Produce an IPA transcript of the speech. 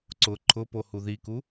ǀʊ ǃʰʊpo huðiku

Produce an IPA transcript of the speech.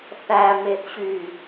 θæmeθɕy

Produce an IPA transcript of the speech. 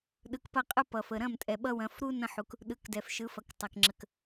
ɗɯ˩˧kpɐ˧qʼɯ˧ pʌ˩fə˩ ɾɐ̃˥˩mtʼɛ˩ɓʌ˧wɐ̃˩˧f ɾu˧ nɐ̃˧ħu˩k | ɗɯ˩˧kdɛ˩fʃɯ˩˧fɐ˩k tˤɐ˩kŋ͡ǁə˩k

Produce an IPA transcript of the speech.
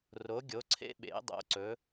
ro˩˧ɡʲo˩˧ǀʰḛ˧ ɓḛ˩˧ dˤo̰˩˧ǀɵ˩˧

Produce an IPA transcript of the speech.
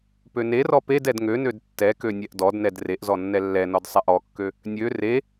pønerɔ ped ɛdŋønød tːɛkø nʲɛʔdɔdnɛd reʔzɔ nːɛlːɛnɔd sˤɛʔɔkːø | nʲø re

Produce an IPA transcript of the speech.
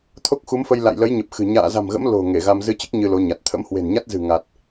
t̪ʰo˦˥k̚xu˨˦mfə˧j la̰˧˨jlə˨˦jɲə˨˩p̚ xɨ̤˨˩ ɲa̰ː˧˨za̤˨˩mɣə̰˧˥m lo̤˨˩ ŋe˧˩ɣa˧m zɨ˧t͡ɕɨ˦˥k̚ ɲɨ˧lo˨˦ɲa˨˩t̚ t̪ʰə̰˧˥mhwe̤˨˩nɲa˦˥t̚zɨ̤˨˩ ŋa˨˩t̚

